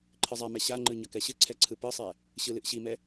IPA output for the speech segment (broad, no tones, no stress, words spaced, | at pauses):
ǃʰɨzˤɛmɛ ɕaŋ͡ǃɯ ɲʌkɛɕɨǀʰɛ ǀʰɯpɯsˤɛ | ɕɯlɨʔɕimɛ